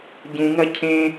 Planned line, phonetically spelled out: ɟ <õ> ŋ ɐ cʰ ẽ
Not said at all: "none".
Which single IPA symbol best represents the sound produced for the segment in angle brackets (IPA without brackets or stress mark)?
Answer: ũ